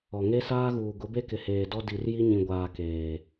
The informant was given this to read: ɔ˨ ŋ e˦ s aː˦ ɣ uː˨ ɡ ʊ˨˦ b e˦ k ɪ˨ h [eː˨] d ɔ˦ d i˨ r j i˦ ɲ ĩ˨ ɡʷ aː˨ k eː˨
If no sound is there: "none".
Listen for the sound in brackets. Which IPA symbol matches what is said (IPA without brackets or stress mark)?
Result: eː˨